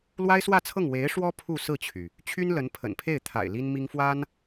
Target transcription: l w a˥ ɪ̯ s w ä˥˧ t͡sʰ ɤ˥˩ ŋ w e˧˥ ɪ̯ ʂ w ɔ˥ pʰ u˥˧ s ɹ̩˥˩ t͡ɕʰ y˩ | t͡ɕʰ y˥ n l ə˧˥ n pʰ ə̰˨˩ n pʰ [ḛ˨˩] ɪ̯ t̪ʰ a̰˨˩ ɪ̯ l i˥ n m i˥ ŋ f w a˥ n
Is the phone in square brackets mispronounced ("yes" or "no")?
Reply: yes